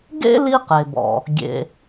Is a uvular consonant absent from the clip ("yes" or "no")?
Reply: no